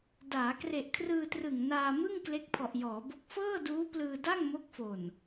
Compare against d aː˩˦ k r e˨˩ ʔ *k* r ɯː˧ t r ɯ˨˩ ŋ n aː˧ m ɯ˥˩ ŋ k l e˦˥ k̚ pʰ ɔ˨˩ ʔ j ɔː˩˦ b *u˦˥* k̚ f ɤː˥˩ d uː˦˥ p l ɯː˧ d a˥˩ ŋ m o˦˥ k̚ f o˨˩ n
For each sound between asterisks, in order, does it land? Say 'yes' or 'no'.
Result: no, no

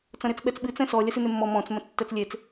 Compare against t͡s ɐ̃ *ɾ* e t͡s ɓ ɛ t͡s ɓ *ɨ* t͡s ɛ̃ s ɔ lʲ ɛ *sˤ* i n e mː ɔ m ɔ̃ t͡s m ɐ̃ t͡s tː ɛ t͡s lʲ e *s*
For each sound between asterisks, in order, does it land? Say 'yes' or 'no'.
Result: yes, yes, no, no

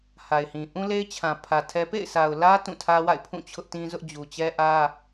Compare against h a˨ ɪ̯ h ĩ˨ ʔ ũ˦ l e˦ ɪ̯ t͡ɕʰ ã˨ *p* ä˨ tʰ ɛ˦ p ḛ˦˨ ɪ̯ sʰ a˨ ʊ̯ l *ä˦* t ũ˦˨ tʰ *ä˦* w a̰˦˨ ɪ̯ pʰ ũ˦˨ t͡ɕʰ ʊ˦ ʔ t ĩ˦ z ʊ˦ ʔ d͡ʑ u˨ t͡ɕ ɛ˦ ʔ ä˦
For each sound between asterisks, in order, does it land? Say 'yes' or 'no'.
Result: no, yes, yes

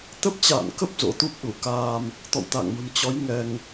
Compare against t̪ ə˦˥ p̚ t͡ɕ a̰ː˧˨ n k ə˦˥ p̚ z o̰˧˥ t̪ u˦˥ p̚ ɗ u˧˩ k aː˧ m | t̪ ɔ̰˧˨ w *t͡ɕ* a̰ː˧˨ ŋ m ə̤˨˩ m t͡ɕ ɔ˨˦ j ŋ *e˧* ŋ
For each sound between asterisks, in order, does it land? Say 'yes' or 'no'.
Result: no, no

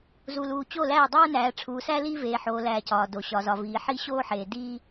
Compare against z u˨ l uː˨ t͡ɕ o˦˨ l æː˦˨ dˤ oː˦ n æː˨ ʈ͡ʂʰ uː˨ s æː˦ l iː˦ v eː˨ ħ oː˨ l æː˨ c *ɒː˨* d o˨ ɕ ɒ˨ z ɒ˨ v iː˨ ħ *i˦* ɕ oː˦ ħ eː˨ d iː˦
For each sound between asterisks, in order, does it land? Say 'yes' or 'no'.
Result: yes, yes

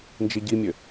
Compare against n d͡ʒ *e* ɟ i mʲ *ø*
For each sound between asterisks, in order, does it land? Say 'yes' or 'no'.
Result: no, yes

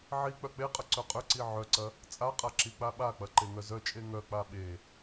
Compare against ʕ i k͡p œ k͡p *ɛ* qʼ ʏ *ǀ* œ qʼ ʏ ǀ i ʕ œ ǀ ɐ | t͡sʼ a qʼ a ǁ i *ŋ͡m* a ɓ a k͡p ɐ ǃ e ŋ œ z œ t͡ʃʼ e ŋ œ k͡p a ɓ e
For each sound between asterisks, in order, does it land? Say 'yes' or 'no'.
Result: no, yes, no

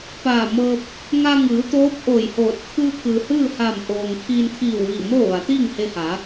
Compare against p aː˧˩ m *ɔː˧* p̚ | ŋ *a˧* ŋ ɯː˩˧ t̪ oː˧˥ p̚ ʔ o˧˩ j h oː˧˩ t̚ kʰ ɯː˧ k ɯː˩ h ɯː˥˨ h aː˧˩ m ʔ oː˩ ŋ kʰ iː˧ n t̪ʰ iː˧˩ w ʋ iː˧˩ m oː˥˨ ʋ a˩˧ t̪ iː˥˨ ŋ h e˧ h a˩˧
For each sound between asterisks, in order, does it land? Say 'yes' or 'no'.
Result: no, yes

